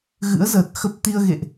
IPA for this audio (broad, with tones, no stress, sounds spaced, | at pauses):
ɣ ɨ̰˧˥ ə̯ z əː˨˩ t̚ x ə˦˥ p̚ t̪ i˧ ə̯ ɣ ḛ˧˨ ʔ